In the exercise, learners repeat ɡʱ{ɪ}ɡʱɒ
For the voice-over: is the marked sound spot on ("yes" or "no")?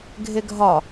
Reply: yes